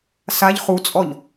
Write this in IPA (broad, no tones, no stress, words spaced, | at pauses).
saʎ χut͡sʼɔʎ